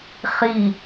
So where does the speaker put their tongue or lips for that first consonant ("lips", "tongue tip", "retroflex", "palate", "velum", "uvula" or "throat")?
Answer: uvula